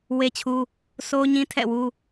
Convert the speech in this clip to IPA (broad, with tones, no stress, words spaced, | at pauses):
we˦t͡ɕʰu˦ | so˦ɲĩ˦tʰɛ̰˦˨wu˦